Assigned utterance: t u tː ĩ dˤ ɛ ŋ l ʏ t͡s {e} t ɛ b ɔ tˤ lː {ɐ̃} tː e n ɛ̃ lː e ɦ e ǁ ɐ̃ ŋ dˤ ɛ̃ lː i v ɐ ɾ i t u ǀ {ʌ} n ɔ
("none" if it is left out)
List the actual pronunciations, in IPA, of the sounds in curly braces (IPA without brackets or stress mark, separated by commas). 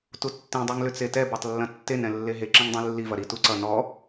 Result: e, ɐ̃, ʌ